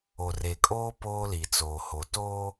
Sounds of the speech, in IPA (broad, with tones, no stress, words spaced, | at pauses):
o˨re˨kʼoː˦ poː˦li˨t͡soː˨ho˨ toː˦